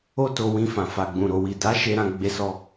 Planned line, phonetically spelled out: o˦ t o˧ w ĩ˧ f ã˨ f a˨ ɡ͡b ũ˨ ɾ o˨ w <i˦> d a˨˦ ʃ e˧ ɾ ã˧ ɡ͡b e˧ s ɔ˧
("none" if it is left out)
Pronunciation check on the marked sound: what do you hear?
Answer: i˨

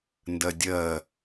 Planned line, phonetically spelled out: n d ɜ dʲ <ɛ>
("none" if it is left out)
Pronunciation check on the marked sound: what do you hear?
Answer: ɜ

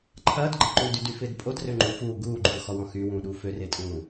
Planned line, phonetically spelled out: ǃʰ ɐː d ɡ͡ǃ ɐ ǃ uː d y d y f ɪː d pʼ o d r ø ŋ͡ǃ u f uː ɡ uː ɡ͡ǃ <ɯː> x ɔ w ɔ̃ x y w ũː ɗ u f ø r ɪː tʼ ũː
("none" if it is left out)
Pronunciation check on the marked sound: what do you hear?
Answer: uː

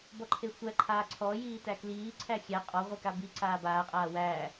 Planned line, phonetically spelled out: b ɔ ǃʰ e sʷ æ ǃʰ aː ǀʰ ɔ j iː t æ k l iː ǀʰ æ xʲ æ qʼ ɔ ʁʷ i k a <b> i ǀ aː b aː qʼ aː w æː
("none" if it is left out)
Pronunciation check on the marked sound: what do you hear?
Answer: b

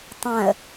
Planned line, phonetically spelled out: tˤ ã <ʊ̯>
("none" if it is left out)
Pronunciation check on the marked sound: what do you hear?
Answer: ə̯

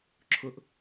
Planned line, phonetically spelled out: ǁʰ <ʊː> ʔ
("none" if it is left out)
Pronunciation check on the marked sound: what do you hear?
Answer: ʊ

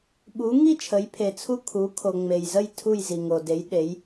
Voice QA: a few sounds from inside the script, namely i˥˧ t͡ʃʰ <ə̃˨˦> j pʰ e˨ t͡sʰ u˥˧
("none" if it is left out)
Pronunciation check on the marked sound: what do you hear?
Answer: ə˨˦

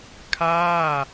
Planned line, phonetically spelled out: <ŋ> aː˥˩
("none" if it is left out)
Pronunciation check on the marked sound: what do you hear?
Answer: kʰ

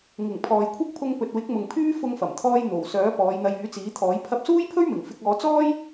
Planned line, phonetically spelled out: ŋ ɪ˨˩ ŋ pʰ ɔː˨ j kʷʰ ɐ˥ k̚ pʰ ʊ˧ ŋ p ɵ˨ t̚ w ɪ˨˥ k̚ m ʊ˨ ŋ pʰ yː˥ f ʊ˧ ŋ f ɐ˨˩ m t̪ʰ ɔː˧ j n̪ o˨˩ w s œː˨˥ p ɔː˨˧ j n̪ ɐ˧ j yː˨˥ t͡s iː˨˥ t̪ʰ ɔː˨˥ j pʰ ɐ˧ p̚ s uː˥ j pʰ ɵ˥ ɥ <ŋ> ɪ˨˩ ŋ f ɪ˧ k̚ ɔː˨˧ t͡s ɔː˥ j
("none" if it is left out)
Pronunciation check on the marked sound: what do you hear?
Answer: m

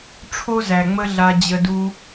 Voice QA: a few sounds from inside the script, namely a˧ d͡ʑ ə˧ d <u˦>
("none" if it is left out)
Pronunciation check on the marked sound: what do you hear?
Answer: u˦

